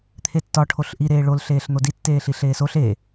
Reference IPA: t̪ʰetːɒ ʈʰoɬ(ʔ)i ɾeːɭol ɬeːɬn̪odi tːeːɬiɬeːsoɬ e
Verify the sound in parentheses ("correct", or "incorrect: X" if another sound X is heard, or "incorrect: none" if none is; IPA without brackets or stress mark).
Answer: correct